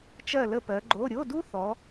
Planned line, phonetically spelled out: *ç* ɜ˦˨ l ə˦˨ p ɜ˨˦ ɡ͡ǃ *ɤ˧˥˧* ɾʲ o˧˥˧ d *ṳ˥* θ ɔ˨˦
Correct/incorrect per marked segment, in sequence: incorrect: t͡ʃ, incorrect: o˧˥˧, incorrect: u˥

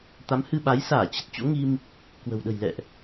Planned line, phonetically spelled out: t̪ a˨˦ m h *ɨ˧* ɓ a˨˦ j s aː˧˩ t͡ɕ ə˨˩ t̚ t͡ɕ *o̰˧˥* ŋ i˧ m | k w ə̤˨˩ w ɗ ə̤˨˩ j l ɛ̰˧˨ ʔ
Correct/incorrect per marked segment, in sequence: correct, correct

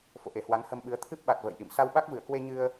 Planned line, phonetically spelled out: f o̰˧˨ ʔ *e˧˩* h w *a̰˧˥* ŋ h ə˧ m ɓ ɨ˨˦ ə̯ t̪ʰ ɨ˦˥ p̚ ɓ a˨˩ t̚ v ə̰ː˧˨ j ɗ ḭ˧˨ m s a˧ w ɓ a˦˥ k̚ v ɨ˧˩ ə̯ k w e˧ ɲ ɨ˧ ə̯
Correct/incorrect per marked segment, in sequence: correct, incorrect: a˨˦

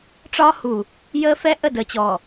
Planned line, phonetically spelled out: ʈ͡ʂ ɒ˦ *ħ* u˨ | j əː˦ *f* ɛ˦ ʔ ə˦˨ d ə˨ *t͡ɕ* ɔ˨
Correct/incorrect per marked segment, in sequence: incorrect: h, correct, correct

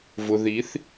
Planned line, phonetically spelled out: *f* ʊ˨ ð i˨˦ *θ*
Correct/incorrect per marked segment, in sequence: incorrect: v, correct

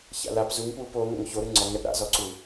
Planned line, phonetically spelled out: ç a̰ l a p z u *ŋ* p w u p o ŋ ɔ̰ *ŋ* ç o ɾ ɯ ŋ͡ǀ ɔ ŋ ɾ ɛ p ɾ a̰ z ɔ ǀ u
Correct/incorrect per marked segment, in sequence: correct, correct

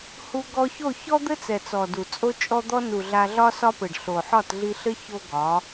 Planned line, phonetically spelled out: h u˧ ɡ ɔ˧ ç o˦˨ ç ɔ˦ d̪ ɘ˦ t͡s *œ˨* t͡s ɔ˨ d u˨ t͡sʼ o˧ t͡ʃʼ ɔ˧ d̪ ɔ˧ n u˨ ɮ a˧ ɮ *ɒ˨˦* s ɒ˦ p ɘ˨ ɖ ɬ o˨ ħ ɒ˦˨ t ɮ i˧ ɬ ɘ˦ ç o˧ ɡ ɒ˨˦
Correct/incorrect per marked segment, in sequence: incorrect: ɛ˨, incorrect: ɒ˦

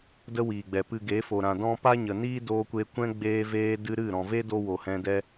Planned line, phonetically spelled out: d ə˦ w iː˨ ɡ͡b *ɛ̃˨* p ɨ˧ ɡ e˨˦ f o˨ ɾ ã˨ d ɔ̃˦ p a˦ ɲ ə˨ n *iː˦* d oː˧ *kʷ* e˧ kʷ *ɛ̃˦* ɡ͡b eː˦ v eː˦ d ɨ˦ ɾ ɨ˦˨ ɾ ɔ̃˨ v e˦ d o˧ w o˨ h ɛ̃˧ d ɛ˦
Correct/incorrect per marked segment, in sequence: incorrect: ɛ˨, correct, correct, correct

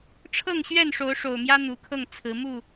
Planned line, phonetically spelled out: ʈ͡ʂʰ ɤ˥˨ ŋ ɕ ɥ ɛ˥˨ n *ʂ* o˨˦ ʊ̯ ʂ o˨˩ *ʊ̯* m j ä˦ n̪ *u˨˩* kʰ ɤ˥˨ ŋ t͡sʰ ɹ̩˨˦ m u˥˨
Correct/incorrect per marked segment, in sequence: correct, correct, correct

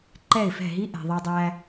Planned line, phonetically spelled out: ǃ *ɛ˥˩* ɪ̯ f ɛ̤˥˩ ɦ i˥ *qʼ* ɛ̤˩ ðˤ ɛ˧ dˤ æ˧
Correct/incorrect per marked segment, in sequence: correct, incorrect: ʔ

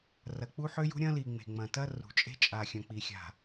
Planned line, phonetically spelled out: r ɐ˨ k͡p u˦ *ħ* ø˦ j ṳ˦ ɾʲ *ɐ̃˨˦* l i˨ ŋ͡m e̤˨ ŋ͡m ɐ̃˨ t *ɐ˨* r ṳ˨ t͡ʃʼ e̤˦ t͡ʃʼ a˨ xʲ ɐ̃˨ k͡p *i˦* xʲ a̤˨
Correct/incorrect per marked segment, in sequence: correct, incorrect: ɐ̃˦, incorrect: ɐ˦, incorrect: i˨

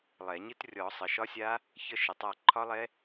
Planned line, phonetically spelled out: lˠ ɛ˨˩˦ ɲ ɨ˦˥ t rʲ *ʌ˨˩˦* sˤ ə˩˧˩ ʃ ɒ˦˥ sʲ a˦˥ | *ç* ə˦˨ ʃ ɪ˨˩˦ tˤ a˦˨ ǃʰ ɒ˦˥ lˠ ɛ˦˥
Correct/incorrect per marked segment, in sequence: incorrect: ɔ˨˩˦, correct

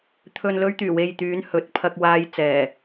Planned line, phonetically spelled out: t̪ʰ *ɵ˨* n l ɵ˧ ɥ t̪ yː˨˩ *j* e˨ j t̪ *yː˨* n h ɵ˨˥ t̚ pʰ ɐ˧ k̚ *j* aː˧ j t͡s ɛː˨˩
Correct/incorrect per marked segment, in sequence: correct, incorrect: w, incorrect: yː˨˧, incorrect: w

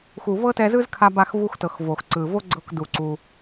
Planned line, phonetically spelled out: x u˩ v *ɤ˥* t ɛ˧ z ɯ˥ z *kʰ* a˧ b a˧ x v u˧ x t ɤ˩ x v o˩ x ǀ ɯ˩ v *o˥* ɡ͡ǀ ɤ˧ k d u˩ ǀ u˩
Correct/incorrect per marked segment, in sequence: correct, correct, correct

